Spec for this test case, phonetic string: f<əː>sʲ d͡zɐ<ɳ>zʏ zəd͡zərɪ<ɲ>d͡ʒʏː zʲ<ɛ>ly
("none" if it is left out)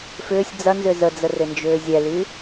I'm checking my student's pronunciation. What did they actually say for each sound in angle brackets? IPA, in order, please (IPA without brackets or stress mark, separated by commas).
ʏː, n, n, ɛ